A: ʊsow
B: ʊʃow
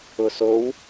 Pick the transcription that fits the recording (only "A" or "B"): A